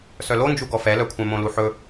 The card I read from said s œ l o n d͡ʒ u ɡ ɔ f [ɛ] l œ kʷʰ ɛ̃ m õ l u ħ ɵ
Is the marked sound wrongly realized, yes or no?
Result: no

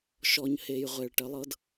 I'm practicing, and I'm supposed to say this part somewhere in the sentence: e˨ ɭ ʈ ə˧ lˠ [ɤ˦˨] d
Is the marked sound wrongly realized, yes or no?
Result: yes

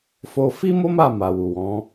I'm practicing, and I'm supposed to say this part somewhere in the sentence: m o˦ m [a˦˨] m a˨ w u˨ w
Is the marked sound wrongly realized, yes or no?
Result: no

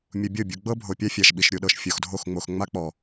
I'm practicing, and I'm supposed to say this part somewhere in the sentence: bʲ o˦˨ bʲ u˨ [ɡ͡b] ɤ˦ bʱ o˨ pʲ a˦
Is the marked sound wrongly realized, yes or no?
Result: no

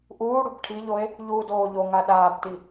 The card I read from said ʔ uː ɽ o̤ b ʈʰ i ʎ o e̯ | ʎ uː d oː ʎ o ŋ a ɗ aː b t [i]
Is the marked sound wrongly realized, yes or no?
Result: no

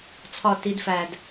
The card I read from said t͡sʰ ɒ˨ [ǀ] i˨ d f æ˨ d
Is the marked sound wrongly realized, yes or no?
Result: yes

